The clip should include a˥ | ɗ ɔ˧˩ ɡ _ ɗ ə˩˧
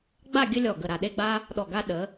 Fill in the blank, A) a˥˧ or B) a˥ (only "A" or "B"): B